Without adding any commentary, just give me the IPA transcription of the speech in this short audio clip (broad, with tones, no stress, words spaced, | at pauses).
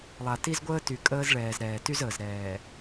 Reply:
lˠa˨ti˦zɡʷəː˦ty˨ kʼəː˦zɭɛː˨zɾɛː˨ ty˦z əː˨zɾɛː˨